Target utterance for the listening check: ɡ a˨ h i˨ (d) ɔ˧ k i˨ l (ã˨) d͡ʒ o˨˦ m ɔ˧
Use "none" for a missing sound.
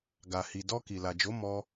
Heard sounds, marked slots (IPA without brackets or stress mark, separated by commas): d, a˨